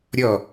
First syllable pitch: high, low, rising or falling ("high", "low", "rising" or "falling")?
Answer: falling